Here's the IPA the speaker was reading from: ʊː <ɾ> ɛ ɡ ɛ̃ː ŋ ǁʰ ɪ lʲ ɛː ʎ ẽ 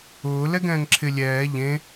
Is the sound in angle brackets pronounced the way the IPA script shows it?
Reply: no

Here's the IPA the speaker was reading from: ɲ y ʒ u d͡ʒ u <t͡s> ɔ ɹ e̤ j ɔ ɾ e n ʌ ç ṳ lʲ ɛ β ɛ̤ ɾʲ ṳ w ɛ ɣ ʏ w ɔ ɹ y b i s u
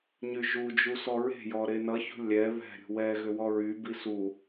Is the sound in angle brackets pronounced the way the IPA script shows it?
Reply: no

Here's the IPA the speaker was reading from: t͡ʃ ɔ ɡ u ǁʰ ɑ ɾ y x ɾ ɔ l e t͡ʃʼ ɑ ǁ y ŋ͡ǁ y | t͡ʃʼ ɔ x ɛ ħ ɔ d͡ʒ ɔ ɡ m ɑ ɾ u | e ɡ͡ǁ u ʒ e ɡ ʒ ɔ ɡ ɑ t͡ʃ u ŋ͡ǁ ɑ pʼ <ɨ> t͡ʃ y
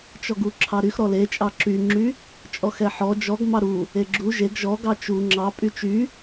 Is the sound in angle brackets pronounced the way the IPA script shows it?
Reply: no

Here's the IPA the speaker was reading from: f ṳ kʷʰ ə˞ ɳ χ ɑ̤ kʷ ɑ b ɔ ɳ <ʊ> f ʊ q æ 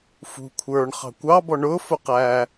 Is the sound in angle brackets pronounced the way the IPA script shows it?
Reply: no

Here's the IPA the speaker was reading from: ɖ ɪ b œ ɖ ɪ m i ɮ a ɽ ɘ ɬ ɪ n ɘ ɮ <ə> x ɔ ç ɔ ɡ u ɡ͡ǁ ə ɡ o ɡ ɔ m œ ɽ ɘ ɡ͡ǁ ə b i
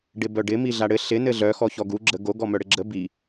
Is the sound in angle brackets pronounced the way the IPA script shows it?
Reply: no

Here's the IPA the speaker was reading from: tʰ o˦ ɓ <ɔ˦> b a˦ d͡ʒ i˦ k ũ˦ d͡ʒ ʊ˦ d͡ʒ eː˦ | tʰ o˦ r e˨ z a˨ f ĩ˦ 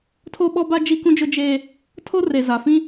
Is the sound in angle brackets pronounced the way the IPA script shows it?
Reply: yes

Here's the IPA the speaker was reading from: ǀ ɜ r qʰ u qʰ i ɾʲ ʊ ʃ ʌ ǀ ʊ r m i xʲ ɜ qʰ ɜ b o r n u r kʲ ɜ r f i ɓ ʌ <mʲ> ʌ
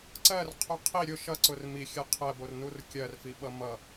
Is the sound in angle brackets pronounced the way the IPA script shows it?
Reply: no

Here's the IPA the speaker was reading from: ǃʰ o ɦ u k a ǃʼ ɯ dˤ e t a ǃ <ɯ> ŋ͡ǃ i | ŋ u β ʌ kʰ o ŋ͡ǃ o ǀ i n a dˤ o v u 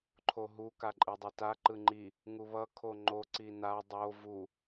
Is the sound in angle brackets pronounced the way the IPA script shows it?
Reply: yes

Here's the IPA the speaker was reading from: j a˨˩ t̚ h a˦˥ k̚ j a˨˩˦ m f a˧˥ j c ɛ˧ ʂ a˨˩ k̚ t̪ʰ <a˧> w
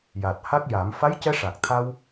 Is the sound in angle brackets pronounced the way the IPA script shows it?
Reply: yes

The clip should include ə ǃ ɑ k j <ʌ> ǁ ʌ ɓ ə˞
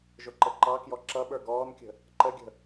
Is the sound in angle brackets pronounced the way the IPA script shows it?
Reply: no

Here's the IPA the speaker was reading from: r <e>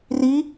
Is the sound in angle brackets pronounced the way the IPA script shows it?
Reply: no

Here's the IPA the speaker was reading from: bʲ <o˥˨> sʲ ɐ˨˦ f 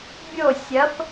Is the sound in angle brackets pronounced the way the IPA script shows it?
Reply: yes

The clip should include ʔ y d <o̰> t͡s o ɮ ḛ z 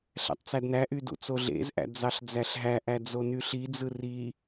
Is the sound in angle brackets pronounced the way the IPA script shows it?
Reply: no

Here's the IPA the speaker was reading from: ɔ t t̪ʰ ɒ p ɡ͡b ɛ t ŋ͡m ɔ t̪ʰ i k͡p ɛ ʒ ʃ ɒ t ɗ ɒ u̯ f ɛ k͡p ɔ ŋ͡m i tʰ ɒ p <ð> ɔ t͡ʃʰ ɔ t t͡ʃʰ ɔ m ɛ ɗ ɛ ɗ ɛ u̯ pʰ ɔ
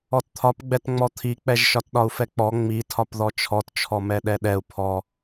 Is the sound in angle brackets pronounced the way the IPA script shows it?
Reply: yes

